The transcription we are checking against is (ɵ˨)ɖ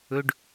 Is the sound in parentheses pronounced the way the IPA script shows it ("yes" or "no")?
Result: yes